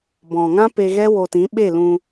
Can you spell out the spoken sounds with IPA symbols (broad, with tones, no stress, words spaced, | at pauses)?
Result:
bɔ̃˨ŋã˦ pe˧ ɣɛ˦wo˧tĩ˨˦ ɓe˦˨lũ˧